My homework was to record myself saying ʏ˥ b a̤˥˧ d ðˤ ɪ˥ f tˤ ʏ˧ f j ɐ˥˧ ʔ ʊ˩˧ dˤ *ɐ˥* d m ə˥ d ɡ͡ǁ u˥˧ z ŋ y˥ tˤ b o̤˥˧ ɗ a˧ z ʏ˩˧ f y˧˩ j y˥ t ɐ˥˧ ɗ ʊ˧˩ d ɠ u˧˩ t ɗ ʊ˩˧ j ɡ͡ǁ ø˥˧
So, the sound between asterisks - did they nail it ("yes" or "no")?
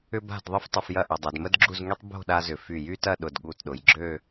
no